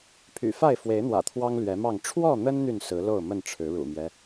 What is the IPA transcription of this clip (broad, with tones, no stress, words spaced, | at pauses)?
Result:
pʰy̰˨˩fa˥˨ɪ̯fwe˨˦ɪ̯n̪wä̰˨˩ t̪ʰwɑ˦ŋ lɥɛ˨˦mɑ˥˨ŋ ʈ͡ʂʰwɔ˥˨n̪ə˦nn̪y˨n sɹ̩˨˦ lo˥˨ʊ̯mə˥˨nʈ͡ʂʰɻ̩˨˦ ɻṵ˨˩mjɛ˦